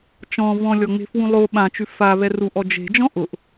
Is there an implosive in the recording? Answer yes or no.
yes